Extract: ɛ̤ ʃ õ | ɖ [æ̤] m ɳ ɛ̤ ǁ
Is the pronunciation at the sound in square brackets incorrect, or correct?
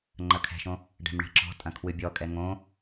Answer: incorrect